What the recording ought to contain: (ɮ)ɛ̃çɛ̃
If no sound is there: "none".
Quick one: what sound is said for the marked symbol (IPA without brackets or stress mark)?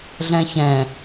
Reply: ɮ